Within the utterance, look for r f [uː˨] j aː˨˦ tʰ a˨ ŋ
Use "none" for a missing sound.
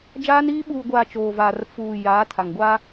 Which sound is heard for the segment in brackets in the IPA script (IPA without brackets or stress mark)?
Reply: uː˨